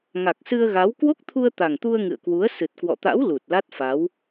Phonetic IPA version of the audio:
ŋ a˨˩ k̚ s ɨ˧ ə̯ ɣ a˨˦ w k w o˦˥ k̚ t̪ʰ u˧ ə̯ t̪ a˨˩ ŋ t̪ u˧ ə̯ ŋ ɨ̰˧˨ ə̯ k w u˨˦ ə̯ s ɨ˨˩ t̚ k w ɔ̰˧˨ t̪ a̰˧˥ w l u˨˩ t̚ l a˦˥ t̚ f a˨˦ w

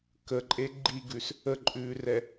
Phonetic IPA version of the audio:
k ə ǃʼ e ɡ͡ǃ i ɡ ʉ s | ə ǃʼ ʉː r ɛ

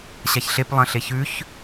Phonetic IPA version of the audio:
ɕ a ç ɬ e p lˠ ɐ̃ ɬ e ç ʉ ç

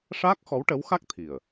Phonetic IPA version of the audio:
ʂ aː˦˥ k̚ x ɔ˧˥ w ʈ ə˧˥ w x a˦˥ k̚ t̪ʰ i˨˩ ə̯

